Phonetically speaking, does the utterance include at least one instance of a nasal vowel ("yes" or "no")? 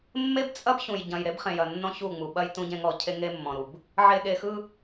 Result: yes